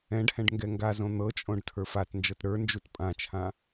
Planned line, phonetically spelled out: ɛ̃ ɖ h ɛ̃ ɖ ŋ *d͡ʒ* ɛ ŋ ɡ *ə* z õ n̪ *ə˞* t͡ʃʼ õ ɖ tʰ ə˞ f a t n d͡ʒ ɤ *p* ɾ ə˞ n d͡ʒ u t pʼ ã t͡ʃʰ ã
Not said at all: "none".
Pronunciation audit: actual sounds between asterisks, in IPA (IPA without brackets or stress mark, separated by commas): ɡ, a, ɤ, t